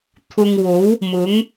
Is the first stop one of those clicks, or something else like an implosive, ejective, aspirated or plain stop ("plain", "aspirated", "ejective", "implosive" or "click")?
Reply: aspirated